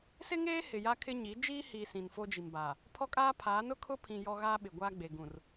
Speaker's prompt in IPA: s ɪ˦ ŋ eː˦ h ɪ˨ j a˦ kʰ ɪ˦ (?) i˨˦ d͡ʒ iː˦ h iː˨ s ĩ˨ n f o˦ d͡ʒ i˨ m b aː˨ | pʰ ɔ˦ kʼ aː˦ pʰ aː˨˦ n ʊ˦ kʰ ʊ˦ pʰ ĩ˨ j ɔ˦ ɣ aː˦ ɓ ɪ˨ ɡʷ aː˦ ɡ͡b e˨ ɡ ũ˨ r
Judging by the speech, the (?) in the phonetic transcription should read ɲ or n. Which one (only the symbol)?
ɲ